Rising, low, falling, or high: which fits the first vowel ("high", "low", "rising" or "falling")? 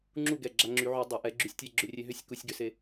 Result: falling